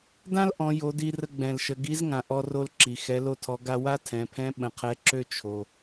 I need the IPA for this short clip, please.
dã˥lʔɔ̃˩˧jo˩˧ di˧rə˧ɡ͡bɛ̃˩lʃə˩˧ ɡi˧˥zŋã˩ ʔɔ˧ro˧lǁi˩ xɛ˩˧lo˧tʰɔ˩˧ɡa˧ wa˥tʰɛ̃˩˧pʰɛ̃˧˥ ɓə̃˩˧qʰɛ˧˥ǁø˥ t͡ʃʰo˩

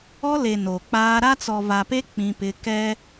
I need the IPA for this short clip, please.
ɔ˦le˨ no˨k͡paː˦ ɾa˦t͡sɔ˨va˨pe˦ k͡pĩ˦pɪ˦ kɛ˦

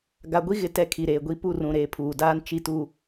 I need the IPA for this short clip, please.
ɡa˨ɡʷi˦ɣɪ˨ tɛ˦kʰi˨ɾeː˨ɡʷi˦ pu˦˨rũ˨ ɾeː˨pʰuː˨daː˦n t͡ʃi˦tu˦

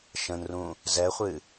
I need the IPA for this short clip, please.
ʃə̃nrũ | zɛχʷɨ

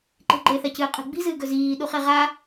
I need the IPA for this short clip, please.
ǃe̤ɡ͡ǃeθacɨː qʼe̤ɡ͡bi̤zɨːɡɵ ziː ɗuχeʁa

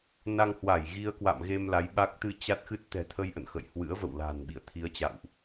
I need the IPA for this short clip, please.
na˧ŋhwa˧˩j ɣi˧ə̯kwa̰˧˨mɣe˧m la˨˦jɓa˦˥k̚ t̪ɨ˧t͡ɕa˦˥t̚xɨ˦˥t̚ t̪ɛ̤˨˩t̪ʰə˧jʔə̰˧˨n xə̰˧˨j hwɨ̰˧˥ə̯və̰˧˨wla̤˨˩n ɓḭ˧˨ə̯t̪ʰi˨˦ə̯t͡ɕa̰˧˨wʔ

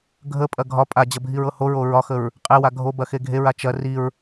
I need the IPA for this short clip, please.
ɡʱəpʼɐ ɡʱɒ pʼad͡ʑɐ bʱiɹɤhoɹo ɹɒxəɹ | qʼewa ɡʱobɐ xeɡʱeɹa t͡ʃɐ riɹ

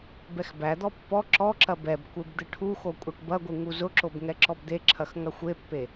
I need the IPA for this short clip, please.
bɛxbæd̪ɔ pːɔ ǁɔǁɐ bɛbkʷeb d̪ɨʈʰuxo kʷʼɐʈbɐɡʷɨ ŋuzʊǁob ŋɛǁɔbd̪eǁʰɐx ŋɐxʷepːe

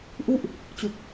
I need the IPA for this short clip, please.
ʔu˥˩ʔ | t͡ɕu˨˩k̚

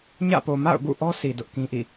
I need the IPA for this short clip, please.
ɲä̰˦˨po˨ ma̰˦˨ʊ̯ɡṵ˦˨ʔɔ˦ sʰi˨dʊ˦ʔkĩ˦ʔḭ˦˨

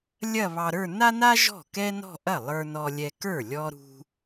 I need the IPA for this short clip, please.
lʲɐ˥˧ βɑ˧ɾə˞˥˧ na˥na˥ ʒɔ̤˥˩kɛ˥nɔ̤˥˧ ʔɐ˥˩ lˠə˞˧nɔ˧lʲɛ˧kə˞˥˩ lʲɔ˥ɾṳ˥

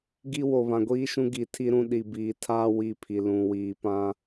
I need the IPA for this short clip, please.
ɡi˦wo˨ βã˨ɡʷiː˦ʃũ˦ ɡi˨tʰi˦ɾũ˦ ɗi˨biː˨tʰaː˦ wi˦˨pʰi˨ lũ˨wiː˨pã˦

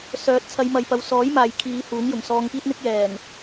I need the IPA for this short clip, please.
sœː˨˥t̚t͡sʰɐ˨˧jmɐ˨j pɐ˨w sɔː˨˥j maː˨jkʰiː˨˧ huː˨˥ŋjʊ˨˩ŋ sɔː˧ŋkiː˥t̚n̪ɪ˥k̚ jɛː˨˩ŋ

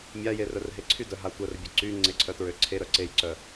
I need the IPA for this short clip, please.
mʲaje rœrɦeǀʰy dœɦa tʷœrbʲœ ǀy ŋ͡ǀeǀʰœtɹøǀʰe ɾœǀejǀœ

